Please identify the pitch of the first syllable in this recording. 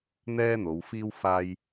high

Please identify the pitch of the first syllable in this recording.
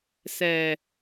low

